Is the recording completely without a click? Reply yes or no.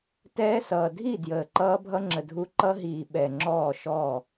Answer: no